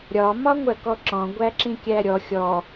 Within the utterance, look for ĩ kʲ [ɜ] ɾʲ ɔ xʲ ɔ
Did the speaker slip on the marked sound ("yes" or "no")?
yes